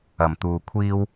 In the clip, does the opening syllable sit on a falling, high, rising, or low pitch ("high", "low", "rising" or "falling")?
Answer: low